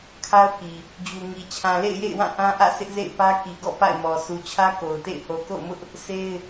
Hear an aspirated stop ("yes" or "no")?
yes